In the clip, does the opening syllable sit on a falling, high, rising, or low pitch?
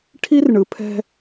high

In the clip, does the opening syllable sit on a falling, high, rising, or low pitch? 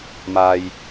low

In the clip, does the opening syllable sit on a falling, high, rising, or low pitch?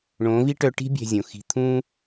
rising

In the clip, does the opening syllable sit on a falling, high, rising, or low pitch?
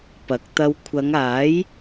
rising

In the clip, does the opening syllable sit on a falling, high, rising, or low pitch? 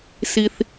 high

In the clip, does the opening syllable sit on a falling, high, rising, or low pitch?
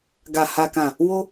low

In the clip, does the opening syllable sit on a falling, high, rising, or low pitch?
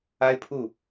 high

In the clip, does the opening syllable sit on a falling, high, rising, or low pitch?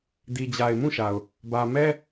low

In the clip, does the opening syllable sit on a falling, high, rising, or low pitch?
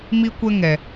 high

